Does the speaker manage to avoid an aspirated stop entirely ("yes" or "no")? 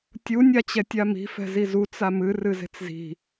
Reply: yes